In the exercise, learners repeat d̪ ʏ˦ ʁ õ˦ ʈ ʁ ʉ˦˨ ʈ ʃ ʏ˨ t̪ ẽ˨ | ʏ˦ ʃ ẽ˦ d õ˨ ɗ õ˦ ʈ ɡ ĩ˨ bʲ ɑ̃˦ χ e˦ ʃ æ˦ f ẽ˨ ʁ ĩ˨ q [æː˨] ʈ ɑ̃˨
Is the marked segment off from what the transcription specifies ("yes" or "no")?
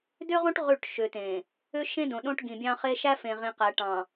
yes